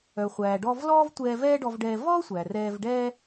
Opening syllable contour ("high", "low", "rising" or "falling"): low